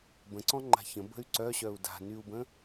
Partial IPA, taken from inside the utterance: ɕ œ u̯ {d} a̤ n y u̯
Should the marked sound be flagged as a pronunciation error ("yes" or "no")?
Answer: no